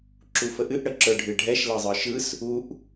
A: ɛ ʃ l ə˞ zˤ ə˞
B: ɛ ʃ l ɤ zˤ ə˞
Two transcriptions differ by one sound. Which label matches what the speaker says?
B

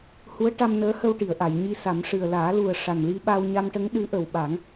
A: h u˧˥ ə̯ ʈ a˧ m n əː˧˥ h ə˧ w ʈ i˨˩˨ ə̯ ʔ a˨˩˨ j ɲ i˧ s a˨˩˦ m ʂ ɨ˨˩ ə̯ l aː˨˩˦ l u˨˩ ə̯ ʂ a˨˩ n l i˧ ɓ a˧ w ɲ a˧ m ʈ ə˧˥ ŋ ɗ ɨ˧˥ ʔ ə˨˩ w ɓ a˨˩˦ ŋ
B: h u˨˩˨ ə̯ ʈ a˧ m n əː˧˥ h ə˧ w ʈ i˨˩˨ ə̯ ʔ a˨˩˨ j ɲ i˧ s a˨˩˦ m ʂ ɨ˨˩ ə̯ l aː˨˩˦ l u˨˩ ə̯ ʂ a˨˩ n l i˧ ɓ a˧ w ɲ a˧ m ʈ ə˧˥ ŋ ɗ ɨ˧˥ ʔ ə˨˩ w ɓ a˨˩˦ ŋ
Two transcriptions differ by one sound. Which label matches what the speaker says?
A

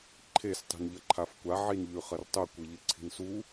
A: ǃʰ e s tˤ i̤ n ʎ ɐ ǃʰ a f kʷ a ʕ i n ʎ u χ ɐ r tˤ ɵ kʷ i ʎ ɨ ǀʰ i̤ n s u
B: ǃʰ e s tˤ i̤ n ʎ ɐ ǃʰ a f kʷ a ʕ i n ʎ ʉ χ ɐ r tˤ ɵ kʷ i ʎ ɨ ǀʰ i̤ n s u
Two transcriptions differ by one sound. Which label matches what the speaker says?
B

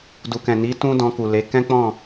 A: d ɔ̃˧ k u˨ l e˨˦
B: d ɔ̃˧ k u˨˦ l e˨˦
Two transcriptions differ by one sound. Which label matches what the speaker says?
A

